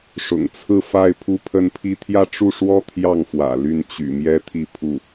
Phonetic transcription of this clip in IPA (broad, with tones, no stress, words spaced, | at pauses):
ʂʊ̰˨˩ŋt͡sʰɹ̩˥˧fa˥˧ɪ̯ pʰu˥˧pʰə˥˧npʰi˥˧ t̪ʰjä˥˧ʈ͡ʂu˥˩ʂwɔ˥ t̪ʰjɑ˥˩ŋfwä̰˨˩ ly˥˩nt͡ɕy̰˨˩mjɛ˥ t̪ʰi˥˧pʰu˥˩